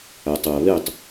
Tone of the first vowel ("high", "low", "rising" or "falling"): low